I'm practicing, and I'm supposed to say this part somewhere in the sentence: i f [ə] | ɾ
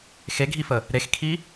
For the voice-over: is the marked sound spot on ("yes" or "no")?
yes